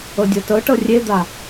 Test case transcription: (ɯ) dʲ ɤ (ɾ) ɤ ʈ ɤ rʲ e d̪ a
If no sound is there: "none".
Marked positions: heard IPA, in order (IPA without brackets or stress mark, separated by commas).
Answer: ɤ, t